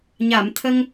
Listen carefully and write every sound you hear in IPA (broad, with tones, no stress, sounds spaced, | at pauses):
ɲ a˨˩˨ m t̪ʰ ə˧ ŋ